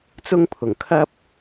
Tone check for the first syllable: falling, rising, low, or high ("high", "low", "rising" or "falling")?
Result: high